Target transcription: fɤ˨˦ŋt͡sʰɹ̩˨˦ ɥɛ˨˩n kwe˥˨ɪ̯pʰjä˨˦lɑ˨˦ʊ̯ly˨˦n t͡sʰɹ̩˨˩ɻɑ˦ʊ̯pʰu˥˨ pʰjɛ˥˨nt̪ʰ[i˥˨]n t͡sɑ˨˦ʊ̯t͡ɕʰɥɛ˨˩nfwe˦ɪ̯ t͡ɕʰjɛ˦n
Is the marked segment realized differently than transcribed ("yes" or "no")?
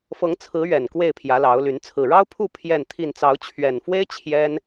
no